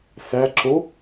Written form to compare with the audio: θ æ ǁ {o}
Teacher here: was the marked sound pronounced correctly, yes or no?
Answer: yes